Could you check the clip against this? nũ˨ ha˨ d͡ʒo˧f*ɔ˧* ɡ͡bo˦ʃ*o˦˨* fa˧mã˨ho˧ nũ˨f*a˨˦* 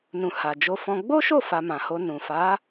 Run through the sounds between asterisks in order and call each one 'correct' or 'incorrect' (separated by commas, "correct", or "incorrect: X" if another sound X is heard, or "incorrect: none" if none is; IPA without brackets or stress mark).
incorrect: ɔ̃˧, correct, correct